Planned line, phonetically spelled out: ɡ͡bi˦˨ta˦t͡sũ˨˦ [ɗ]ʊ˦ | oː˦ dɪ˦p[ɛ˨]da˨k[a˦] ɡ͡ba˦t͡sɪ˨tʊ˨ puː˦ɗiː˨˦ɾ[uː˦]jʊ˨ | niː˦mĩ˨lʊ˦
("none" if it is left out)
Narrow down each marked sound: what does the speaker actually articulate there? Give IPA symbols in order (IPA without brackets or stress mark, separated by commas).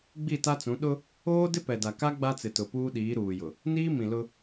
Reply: ɗ, ɛ˨, a˦, uː˨